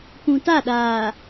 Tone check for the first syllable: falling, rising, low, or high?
low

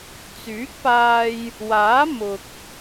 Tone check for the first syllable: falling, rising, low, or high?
rising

